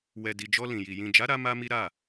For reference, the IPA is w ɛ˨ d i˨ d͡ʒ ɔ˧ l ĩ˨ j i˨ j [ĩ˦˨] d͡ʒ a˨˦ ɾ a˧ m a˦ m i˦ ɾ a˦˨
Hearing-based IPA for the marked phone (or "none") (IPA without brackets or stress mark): ĩ˨